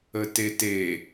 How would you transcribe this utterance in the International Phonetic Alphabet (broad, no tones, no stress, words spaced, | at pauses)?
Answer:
ətete